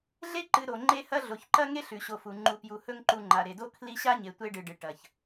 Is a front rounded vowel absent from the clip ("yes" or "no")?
yes